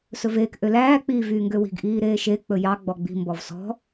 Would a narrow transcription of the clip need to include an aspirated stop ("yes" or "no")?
no